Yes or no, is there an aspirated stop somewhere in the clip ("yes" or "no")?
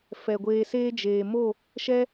no